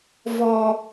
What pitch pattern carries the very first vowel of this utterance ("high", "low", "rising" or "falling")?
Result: high